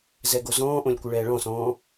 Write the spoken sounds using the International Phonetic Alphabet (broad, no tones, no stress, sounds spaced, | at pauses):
z ɛ ɡ o z ɔ̃ː ʔ õ lʲ kʷ ɨ ɭ ɛː ɭ ɔ̃ s ɔ̃ː